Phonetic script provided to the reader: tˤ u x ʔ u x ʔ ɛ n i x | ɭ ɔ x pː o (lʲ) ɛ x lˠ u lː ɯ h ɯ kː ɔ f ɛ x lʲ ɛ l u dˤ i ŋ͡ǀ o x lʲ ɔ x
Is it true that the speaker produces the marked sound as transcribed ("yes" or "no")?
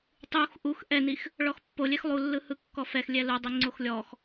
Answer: yes